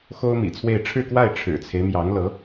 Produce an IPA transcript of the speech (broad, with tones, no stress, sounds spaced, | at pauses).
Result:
x o˥ ʊ̯ m ḭ˨˩ t͡sʰ w e˥˧ ɪ̯ ʈ͡ʂʰ ɻ̩˥˧ k w a˥˩ ɪ̯ ʈ͡ʂʰ ɻ̩˨˩ t͡sʰ e˦ ɪ̯ m j ɑ˧˥ ŋ l ɤ˧˥